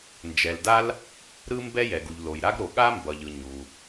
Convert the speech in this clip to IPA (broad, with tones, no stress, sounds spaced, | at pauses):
n d͡ʒ ɛ˩ l d a˥ l | ɾ ɯ˥ m b ɛ˥ j ɛ˩ ɡ u˩ ʎ l o˩ j ɾ a˥ ɡ ɾ o˩ ɠ a˥ m b ʌ˩ ʎ ɯ˩ ɲ u˩